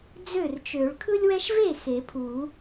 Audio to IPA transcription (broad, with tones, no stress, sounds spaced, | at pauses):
d͡z ø˥˩ r t͡ʃ ø˨˩˦ ɭ kʰ ɯ˦ lʲ w ɛ˦ ʃ v e˥˩ x e˨˩˦ pʰ u˨˩˦